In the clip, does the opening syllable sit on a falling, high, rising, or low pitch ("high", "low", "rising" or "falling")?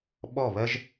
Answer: falling